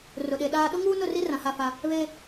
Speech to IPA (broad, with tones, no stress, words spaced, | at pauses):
rʊ˨ɗe˨ɗaː˦ ɗʊ˦ŋuː˦nʊ˦˨ri˦ rã˨ha˦˨fa˦ | βe˦